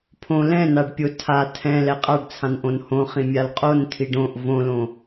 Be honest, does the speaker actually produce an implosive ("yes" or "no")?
no